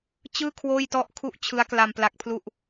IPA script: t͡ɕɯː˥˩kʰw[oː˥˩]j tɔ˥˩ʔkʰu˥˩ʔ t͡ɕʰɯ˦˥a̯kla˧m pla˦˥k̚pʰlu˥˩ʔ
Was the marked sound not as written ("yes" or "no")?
no